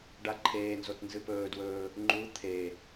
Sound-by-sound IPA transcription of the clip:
ɖ a ǃʰ eː n z o t n z ɨ p ɵː d w ɵː | ŋ͡ǃ u t̪ʰ e

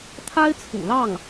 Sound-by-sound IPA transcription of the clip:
t̪ʰ a˥ ɪ̯ t͡sʰ ṵ˨˩ l ɑ˥˩ ŋ

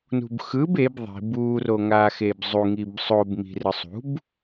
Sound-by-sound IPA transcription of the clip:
n ṳ b x ɯ b e b ðˤ i̤ b u r o ŋ a x e b zˤ u ŋ i b sˤ o b m i̤ r ɯ sˤ ṳ b

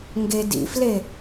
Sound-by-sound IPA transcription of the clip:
ŋ ɡ e d ḭ f l e

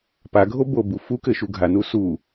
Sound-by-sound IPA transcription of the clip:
p a ɡʱ o b o b u f u k ɘ ʃ u ɡʱ a n u s u

